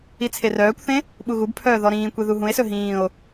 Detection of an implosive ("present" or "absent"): present